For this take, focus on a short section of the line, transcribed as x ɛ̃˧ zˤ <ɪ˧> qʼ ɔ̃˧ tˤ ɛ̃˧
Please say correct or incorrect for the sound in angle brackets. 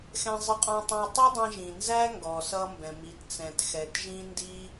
correct